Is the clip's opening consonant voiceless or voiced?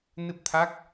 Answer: voiced